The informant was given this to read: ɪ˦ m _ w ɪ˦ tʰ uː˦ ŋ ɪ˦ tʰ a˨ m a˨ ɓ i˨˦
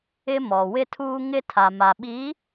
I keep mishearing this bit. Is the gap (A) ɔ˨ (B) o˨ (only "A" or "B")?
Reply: A